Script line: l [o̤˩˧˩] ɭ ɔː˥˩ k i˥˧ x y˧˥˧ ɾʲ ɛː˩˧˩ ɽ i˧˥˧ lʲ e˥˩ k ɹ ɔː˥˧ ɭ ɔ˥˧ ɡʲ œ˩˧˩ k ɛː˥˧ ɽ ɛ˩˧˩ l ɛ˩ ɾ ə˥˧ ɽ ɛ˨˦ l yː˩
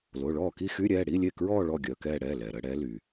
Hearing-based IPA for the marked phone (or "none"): o˩˧˩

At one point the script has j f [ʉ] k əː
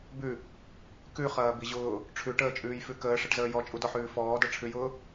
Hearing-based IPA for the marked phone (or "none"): ʉ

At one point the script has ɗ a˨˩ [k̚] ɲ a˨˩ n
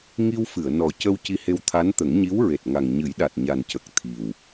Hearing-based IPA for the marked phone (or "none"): t̚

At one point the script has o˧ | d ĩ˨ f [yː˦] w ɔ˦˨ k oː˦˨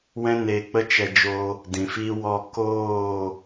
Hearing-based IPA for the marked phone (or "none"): iː˦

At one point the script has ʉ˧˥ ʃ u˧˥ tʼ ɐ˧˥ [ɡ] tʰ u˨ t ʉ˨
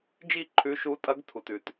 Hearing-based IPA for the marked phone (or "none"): ɡ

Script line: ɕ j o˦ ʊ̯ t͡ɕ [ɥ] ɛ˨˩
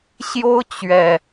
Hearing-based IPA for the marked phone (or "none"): ɥ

